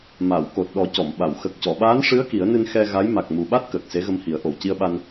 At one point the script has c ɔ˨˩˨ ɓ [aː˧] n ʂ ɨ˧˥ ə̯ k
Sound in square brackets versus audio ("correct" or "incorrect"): incorrect